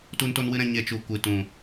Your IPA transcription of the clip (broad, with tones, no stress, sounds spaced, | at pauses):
t u˦ n t o˦ n w ɨ˦ ɾ ɛ̃˧ ɲ e˧ t͡ʃ u˨ kʷ ɨ˨ t ũ˨